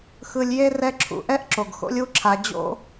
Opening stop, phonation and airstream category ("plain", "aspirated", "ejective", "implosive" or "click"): click